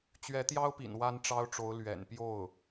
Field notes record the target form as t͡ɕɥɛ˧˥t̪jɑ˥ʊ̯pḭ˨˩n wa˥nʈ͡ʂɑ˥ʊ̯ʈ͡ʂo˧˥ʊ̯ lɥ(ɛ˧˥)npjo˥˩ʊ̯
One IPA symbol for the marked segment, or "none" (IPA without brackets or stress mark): ɛ̰˨˩